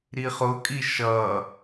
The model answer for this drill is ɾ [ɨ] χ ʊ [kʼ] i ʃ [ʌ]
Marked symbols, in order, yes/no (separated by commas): no, yes, yes